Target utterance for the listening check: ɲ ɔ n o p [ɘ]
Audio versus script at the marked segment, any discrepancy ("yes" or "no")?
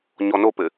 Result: no